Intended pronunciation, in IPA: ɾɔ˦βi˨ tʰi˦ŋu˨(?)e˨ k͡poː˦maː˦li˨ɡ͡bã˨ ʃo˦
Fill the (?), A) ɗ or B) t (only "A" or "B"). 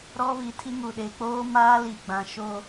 A